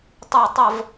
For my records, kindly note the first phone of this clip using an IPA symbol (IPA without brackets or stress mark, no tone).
tˤ